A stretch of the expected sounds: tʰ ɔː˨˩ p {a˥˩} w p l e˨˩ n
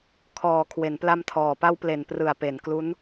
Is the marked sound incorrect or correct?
incorrect: a˦˥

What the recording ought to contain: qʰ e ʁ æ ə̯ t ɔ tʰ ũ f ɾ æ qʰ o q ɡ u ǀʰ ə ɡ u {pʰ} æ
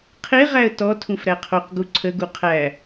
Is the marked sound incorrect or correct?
incorrect: qʰ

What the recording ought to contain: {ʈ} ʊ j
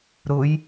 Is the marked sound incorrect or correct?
incorrect: ɾ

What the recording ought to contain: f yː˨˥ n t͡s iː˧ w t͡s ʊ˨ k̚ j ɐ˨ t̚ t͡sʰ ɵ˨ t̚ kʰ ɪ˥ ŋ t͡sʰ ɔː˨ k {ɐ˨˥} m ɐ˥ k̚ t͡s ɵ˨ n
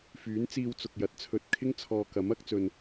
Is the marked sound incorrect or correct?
correct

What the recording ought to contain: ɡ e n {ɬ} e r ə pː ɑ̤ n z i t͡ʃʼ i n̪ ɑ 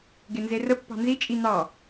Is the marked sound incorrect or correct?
incorrect: z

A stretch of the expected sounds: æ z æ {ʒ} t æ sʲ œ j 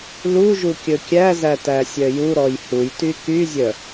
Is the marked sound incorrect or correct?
incorrect: none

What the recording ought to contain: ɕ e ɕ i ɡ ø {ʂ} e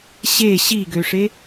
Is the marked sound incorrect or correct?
correct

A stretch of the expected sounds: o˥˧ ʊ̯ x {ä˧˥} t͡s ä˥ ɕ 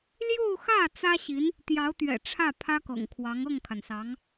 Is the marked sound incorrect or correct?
incorrect: ä˥˩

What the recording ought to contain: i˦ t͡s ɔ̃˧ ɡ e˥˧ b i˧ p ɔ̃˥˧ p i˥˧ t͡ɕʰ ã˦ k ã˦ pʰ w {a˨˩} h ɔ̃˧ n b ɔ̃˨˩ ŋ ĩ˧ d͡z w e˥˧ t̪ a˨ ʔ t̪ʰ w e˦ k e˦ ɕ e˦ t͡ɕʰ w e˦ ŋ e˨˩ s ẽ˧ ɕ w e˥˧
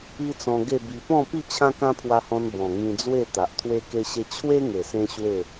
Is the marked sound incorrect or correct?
incorrect: a˧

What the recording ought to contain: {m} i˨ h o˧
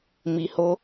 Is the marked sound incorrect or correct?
correct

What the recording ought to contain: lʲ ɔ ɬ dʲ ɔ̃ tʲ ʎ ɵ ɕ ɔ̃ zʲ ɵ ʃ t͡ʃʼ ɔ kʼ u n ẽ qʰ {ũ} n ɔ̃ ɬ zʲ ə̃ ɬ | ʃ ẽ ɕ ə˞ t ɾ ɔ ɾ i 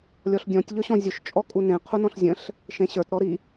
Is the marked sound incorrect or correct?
incorrect: u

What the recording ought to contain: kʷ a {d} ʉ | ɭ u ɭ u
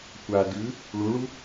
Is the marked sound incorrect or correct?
correct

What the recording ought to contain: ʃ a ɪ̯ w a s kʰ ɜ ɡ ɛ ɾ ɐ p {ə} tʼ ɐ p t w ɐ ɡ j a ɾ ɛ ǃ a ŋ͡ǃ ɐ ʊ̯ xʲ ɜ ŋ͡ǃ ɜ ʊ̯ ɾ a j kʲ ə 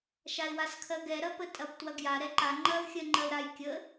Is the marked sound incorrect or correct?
correct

